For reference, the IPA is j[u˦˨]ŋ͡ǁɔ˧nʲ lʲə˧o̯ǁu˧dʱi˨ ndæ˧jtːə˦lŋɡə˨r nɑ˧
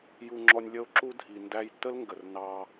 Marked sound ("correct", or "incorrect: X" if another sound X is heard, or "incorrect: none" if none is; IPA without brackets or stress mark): incorrect: u˧